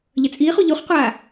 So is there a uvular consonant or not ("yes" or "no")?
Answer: yes